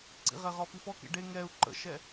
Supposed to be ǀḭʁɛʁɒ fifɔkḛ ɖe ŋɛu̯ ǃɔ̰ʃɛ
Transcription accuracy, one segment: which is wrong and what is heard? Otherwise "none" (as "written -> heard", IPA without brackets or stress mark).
ɔ̰ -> ə̰